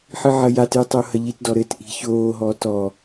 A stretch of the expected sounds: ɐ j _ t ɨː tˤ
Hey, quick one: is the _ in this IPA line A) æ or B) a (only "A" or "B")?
B